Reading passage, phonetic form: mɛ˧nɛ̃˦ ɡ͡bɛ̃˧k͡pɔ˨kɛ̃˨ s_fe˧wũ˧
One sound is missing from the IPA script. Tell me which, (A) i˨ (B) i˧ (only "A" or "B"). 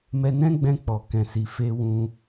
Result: A